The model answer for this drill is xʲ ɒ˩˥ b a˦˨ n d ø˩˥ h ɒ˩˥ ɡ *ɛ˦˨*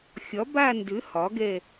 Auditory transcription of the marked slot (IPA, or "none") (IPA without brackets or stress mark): ɛ˦˨